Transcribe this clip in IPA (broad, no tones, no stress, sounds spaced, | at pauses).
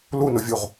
l u n o vʲ u ʁ